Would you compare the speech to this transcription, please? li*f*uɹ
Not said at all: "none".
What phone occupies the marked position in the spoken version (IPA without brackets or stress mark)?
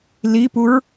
p